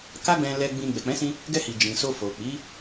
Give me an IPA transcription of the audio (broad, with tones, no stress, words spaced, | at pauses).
ka˦ɡ͡bɛ̃˧lɛ˧ ɡ͡bĩ˧ ɡ͡bɛ˨k͡pɛ̃˨˦sĩ˧ | ɡɛ˧hi˨ d͡ʒĩ˨so˧ fo˨k͡pi˨˦